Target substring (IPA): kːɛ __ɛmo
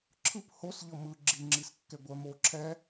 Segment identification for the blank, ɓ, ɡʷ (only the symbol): ɡʷ